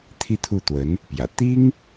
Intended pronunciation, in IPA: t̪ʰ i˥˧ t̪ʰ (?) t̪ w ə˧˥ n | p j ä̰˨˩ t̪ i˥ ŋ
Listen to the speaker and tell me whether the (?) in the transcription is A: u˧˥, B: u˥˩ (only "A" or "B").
B